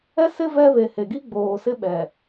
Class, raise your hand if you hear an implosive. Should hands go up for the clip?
yes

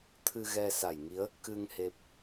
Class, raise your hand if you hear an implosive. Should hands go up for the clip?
no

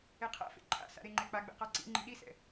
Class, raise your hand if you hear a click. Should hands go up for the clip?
yes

